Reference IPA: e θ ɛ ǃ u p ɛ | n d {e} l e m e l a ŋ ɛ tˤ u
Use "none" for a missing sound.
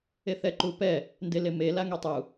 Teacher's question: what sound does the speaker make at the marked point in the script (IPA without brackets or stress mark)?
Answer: e